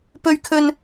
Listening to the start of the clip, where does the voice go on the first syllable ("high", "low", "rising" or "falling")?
high